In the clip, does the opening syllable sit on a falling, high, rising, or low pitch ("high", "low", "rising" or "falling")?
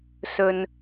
low